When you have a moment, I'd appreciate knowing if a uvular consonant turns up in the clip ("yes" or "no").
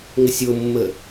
no